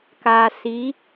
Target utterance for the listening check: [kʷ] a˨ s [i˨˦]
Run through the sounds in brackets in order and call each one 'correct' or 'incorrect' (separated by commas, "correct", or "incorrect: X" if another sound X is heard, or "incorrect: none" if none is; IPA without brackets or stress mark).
incorrect: k, correct